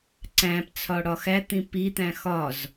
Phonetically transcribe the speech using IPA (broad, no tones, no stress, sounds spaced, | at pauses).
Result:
ǀ æ̃ p t͡sʰ ɒ ɽ ɒ x æ t̪ ĩ p i t̪ æ̃ x ɒ z